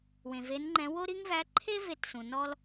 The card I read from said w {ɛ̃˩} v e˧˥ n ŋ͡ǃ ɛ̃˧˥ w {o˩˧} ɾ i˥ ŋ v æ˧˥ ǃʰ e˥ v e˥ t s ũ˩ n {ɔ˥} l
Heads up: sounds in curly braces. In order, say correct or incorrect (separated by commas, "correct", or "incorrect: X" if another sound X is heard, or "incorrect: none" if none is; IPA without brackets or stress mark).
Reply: incorrect: ẽ˩, incorrect: o˥, correct